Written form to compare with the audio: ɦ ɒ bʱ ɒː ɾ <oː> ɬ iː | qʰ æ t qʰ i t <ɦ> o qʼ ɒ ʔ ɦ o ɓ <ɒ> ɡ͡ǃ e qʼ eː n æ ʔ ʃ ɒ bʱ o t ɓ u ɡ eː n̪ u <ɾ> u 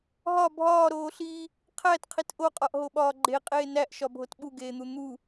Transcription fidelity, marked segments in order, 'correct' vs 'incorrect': correct, incorrect: ʔ, incorrect: ɒː, incorrect: n̪

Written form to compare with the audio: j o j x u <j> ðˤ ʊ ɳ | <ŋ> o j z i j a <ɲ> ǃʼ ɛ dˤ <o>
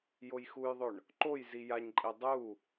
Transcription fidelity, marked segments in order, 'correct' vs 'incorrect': correct, incorrect: ǃ, correct, incorrect: u

